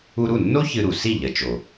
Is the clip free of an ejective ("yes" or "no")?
yes